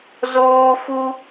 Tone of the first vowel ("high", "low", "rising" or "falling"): high